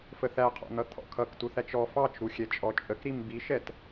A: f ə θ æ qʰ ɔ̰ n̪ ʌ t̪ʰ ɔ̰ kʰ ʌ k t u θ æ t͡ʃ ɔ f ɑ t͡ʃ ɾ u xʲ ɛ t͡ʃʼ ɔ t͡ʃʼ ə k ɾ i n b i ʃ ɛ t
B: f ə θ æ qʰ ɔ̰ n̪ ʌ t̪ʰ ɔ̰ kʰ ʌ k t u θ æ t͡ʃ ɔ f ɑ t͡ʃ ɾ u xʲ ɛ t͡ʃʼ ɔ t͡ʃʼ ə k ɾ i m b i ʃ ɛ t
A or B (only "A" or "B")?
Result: B